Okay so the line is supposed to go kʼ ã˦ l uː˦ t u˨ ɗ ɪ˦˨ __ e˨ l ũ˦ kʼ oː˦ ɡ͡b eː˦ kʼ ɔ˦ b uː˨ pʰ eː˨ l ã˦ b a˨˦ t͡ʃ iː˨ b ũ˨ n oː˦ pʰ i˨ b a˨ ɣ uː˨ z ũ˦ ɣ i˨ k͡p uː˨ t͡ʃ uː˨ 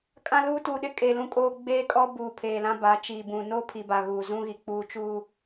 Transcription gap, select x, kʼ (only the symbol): kʼ